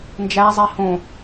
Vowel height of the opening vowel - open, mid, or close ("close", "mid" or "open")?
open